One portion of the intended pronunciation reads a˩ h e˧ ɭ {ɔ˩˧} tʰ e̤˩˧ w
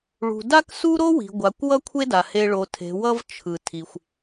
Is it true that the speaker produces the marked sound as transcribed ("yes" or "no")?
no